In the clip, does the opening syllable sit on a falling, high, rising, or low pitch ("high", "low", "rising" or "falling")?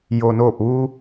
low